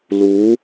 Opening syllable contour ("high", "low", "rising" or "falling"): rising